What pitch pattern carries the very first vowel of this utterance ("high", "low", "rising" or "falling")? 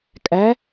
rising